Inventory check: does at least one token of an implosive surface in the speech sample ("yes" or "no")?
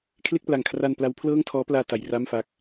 no